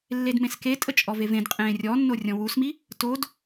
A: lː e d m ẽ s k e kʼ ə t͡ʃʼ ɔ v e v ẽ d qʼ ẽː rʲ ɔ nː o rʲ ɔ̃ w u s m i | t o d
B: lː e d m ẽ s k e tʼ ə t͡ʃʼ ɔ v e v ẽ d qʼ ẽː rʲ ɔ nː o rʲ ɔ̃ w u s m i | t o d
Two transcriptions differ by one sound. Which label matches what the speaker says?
B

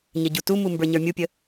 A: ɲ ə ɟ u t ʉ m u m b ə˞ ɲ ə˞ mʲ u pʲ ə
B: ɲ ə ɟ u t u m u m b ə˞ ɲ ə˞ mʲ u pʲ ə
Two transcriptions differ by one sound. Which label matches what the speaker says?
B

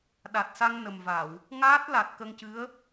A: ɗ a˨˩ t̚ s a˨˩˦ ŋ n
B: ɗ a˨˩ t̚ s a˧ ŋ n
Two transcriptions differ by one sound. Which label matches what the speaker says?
B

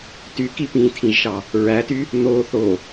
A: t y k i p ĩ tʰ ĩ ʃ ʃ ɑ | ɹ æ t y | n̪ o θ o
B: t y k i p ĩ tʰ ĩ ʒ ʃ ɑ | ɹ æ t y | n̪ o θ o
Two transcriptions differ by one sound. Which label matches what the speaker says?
B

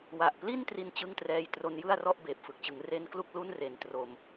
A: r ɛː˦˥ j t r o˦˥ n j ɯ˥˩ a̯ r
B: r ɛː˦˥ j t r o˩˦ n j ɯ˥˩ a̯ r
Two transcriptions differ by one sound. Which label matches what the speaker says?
A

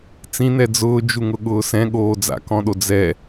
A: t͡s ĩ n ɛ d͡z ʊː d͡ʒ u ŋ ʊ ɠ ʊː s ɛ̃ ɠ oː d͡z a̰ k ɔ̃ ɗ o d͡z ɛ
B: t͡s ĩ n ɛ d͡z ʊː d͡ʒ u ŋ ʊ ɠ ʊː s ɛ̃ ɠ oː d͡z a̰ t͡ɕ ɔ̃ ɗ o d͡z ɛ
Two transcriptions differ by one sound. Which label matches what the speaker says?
A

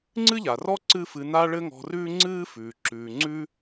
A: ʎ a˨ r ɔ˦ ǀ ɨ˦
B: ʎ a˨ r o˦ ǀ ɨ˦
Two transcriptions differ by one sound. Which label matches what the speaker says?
A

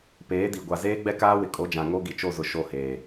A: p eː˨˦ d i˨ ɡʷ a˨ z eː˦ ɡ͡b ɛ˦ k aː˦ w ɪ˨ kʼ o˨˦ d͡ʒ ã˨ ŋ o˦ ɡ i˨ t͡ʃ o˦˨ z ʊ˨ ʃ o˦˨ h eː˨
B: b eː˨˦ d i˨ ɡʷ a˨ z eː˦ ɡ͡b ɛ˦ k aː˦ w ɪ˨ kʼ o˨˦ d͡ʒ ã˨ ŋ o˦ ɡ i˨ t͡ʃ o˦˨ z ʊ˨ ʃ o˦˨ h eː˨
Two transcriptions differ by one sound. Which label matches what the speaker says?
A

